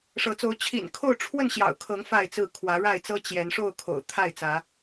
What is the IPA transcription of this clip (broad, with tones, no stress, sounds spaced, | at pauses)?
ʂ ɤ˨˦ t͡s o˨˦ ʊ̯ t͡ɕʰ ḭ˨˩ n kʰ o˥˨ ʊ̯ ʈ͡ʂʰ w ə˥˨ n ɕ j ɑ̰˨˩ ʊ̯ kʰ ɤ˨˦ ŋ f a˥˨ ɪ̯ t͡s ɹ̩˥˨ kʰ w ä˨˦ ɻ a˥˨ ɪ̯ t͡s ɤ˦ t͡ɕ j ɛ˨˦ n ʂ o˥˨ ʊ̯ kʰ o̰˨˩ ʊ̯ t̪ʰ a˥˨ ɪ̯ t͡s ä˨˦